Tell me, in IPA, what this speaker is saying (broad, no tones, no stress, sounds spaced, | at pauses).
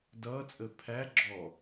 d ʌː t͡sʼ ə pʰ æ ɡ͡ǁ ɔ